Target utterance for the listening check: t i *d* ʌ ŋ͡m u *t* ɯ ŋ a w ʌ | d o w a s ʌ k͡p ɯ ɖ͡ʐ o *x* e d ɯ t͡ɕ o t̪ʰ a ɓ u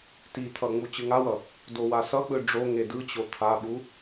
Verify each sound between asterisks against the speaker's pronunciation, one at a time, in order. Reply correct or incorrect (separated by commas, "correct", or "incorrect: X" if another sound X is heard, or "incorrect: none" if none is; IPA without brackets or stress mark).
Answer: incorrect: t̪ʰ, incorrect: t͡ɕ, incorrect: ŋ